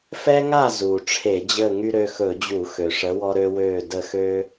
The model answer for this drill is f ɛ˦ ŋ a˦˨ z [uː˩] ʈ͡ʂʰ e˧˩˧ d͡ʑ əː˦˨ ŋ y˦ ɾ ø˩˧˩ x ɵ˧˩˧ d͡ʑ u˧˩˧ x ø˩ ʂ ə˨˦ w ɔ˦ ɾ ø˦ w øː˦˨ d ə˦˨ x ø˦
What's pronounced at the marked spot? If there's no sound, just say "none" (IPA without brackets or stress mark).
uː˩